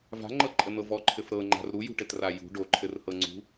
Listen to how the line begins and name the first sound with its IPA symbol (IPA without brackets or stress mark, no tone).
v